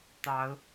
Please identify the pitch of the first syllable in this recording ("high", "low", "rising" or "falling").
rising